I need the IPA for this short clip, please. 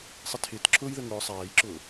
sˤɪtʰɪːt ǁʰʊːjðə ŋʊː sˤæːjǁʊː

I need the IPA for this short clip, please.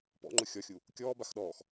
pɔ̰ŋ͡ǃʊ xʲɔxʲu | kʲɔː baxɗɔːx

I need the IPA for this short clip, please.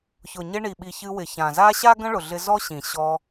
çʊ˨ ɲɪ˧ɳi˨ɓi˨ çɨ˧wɪ˨çã˨ za˦ɕa˦ ɡə̃˦ɭʊ˨ɮɪ˧ zɔ˦ɕĩ˨ ɕɔ˧

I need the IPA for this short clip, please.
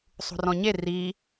sˤṳrɔ̃ɲe ri

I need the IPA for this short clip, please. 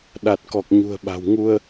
ɗa˨˩t̚kɔ˨˩k̚ɲṳ˨˩ə̯ɓa̤˨˩w ŋu˧ə̯

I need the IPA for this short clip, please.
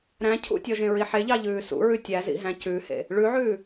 ɾæ̃ cʰṵtʲɔʒẽ ɹiħeʎɑ ʎʉːsṵɹʉ tʲæzḭɦæ̃ cʉhḛ | ɭʉʕʉː

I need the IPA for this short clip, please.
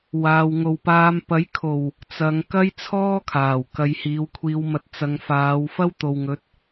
waː˨wŋo˨wpaː˧m pɐ˨˥jkʰo˨˩w | t͡sɐ˨˧ŋ kɐ˥jt͡sʰɔː˥ kʰaː˨˩w kɐ˧j hiː˨˧wkʷʰiː˧wmɐ˧t̚ t͡sɐ˨ŋfaː˨˧w fɐ˥w t̪o˨wŋɵ˨˥t̚

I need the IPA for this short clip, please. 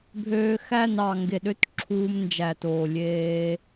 bʱøː˧xæ˦˨n ɑ˨ŋɡe˨ɗø˦t ǁʰuː˧mnd͡ʒæ˨toː˨ lʲeː˧

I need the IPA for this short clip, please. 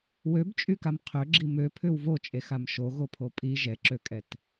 wøbt͡ʃʼykam qʰøɡ͡ǁi møpʰʏw vot͡ʃʼexam ʃoɣopʰo pʼi ʒɛǁøkʼɛt

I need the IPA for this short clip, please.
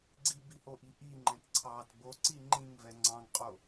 ɡ͡ǀibihoʔi ʔiŋ͡ǃɛ̃t ǀʰɑt boǀi ŋ͡ǃĩŋvɛ ŋ͡ǀɑ̃ŋqʼo

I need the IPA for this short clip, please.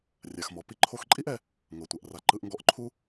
rʲa˩xmɔ˩ pi˥ ǃʰo˧xǃʼi˥ʔɛ˧ | ŋɤ˩tʷɛ˩ʔ ra˩ ǃɯ˧ʔŋɡɔ˧ʔǃʰu˥

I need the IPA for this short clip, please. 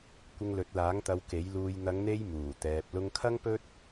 kʷɪ˧ŋlɵ˨˥t̚laː˨˥ŋt̪ɐ˧w ke˨˥jluː˧j n̪ɐ˨˧ŋn̪e˧j muː˨˩t̪ɛː˨p̚ lʊ˧ŋkʰɐ˥ŋpɵ˥t̚

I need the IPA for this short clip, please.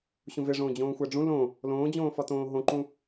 ɕũveʐõː d͡ʑõːxʷæɖ͡ʐũ lõ | lõːd͡ʑõːfɒtõː ɦõǃũ

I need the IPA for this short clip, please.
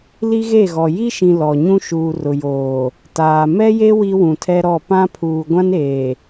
li˦ɣe˦˨ɣɔ˨ ji˦ʃĩ˨ lɔ˨ ɲũ˦ʃuː˨rʊ˨joː˨ | taː˨ mɛ˦je˦ wi˦wũ˨tʰɛ˦ɾɔ˦˨ pã˦pʰuː˨ ɡʷã˦neː˨

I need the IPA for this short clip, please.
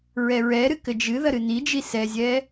ɹɛɹɛɾɨ kɘd͡ʒɨðɐ ɾɨnid͡ʒi sɛzʲɛ

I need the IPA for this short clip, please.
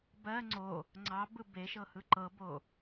bɜ ŋ͡ǀo | ŋ͡ǀɑ bɯbeʃɤ hɯǃɤbo

